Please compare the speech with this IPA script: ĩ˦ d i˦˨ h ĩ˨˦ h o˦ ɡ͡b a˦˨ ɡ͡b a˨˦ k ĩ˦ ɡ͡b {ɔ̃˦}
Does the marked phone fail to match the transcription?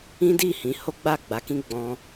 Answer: no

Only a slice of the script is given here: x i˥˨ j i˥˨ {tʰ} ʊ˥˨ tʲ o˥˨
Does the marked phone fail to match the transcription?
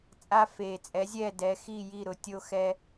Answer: yes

